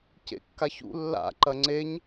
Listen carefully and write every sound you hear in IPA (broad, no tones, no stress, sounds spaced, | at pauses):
c ḛ kː a ç ṵ lː a̰ ǃ ɐ ŋ͡ǀ e ɲ